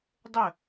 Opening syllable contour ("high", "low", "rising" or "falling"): falling